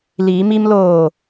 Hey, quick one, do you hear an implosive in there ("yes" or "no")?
no